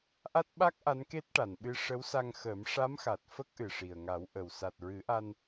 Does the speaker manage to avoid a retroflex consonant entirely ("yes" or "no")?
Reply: no